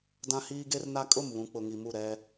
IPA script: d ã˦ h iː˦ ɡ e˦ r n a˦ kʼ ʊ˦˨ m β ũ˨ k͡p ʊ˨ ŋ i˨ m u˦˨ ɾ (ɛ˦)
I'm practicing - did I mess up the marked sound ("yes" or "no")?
no